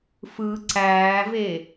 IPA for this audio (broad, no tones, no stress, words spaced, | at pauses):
fɯ ǀæːve